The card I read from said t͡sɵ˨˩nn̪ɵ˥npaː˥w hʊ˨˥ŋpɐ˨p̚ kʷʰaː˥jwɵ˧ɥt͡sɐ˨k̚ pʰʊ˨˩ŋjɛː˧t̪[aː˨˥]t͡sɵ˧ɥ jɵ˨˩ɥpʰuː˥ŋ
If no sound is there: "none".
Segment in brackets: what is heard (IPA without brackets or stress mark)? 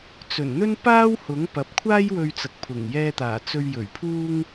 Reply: aː˨˩